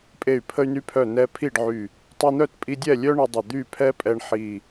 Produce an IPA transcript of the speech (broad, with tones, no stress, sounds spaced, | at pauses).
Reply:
pʼ e˧˩ y̯ pʰ ə˧ y̯ n y˧ pʰ œ˧˩ n ɛ˧ pʰ i˥˨ ɖ ʕ y˧˩ | tˤ y˧ n̪ œ˥˨ t pʼ i˧ dʲ ɛ˥˨ lʲ œ˥ ɳ ə˧ dˤ ə˧˩ d̪ y˥˨ pʰ ɛ˥ pʼ ɛ˧ ɳ ħ i˧˩